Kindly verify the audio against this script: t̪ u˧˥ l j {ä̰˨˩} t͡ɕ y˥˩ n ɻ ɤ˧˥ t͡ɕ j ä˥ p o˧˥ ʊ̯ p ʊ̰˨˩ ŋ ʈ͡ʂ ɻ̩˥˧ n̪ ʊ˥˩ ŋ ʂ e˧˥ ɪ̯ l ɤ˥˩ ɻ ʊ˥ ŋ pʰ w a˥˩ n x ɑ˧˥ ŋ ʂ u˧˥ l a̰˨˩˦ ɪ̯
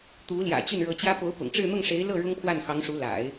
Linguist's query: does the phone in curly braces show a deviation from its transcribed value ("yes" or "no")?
no